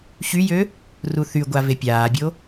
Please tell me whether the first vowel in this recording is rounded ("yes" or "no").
yes